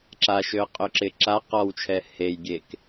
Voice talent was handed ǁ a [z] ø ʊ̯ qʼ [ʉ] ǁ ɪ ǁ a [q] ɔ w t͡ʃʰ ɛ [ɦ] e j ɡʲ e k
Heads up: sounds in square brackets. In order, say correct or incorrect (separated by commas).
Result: incorrect, incorrect, correct, incorrect